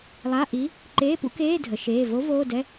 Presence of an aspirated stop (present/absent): absent